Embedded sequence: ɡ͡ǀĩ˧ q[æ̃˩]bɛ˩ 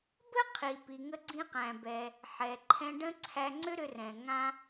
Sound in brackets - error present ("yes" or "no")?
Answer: no